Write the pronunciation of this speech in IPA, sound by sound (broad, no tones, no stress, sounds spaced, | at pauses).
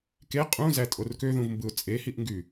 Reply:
k e qʼ ũ z æ tʼ o r k ø ð ũ v m b ɯ ʊ̯ t͡sʼ e h i ʔ ŋ ɡ y